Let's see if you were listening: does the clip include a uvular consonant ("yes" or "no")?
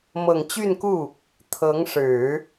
no